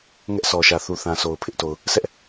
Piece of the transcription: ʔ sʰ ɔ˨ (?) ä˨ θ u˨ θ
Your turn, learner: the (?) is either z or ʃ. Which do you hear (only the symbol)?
ʃ